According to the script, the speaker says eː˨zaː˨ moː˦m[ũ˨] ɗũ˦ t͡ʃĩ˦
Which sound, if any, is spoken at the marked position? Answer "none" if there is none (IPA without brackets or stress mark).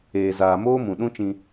ũ˨